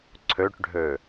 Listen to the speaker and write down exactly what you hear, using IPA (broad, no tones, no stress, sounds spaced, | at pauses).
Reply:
ǀʰ ø ʈ ɖʱ ø